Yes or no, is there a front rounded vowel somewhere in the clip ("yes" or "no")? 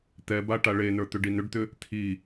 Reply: yes